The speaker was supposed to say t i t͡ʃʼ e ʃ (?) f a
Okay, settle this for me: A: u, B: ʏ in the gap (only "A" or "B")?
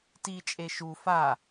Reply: A